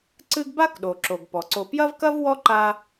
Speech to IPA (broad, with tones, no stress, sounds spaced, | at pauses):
ǀ ɨ˦ ɡ b a˥ k ɗ o˩ ǁ o˩ ɡ p ɔ˩ ǀ o˨ p j ɐ˥ v k ɐ˥ v w ɔ˥ ǃ a˦